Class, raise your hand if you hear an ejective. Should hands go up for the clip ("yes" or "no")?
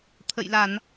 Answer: no